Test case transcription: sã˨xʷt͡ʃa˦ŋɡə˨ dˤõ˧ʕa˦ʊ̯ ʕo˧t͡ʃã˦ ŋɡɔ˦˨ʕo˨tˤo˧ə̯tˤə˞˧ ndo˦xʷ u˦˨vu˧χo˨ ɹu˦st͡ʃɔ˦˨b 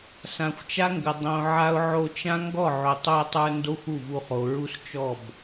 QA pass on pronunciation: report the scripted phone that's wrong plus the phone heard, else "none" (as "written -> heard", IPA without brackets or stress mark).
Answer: none